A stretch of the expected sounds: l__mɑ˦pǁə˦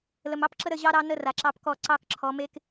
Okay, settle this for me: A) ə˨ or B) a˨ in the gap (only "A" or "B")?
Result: A